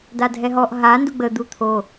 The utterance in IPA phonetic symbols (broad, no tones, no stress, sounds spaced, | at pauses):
d a dʱ ɛ ɦ ɔ ʔ ɦ a n d u ɡ͡b ə d̪ u t̪ʰ o